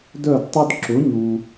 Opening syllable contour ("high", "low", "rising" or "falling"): falling